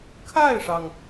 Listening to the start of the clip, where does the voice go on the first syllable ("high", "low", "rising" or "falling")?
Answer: falling